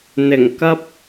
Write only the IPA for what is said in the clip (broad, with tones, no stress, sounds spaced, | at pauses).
n̪ ɪ˨˩ ŋ k ɐ˧ p̚